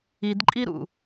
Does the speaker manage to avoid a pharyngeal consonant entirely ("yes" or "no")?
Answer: yes